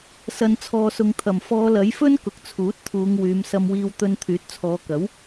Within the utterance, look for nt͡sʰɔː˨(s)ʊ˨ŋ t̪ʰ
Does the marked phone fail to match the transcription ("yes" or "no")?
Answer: no